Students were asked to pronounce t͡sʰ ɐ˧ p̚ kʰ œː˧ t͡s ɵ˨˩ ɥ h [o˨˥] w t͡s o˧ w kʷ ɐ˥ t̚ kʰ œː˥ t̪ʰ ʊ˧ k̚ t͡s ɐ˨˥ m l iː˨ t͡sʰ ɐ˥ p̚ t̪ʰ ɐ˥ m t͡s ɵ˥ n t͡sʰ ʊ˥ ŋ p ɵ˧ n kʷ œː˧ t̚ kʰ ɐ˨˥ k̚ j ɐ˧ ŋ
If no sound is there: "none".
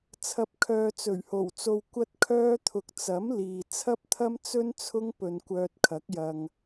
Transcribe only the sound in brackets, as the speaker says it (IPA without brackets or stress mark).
o˨˩